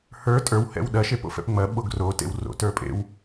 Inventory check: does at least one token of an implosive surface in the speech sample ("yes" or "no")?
yes